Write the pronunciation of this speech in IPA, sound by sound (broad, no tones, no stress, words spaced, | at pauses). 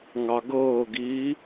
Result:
ŋɑɡɤːɡiː